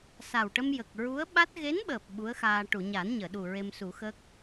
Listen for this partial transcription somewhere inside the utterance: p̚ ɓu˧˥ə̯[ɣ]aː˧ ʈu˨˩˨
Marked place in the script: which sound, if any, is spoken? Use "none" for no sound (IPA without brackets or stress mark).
x